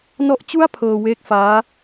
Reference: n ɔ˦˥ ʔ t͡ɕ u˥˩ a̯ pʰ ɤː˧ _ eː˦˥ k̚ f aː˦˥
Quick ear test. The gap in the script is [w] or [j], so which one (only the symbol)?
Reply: w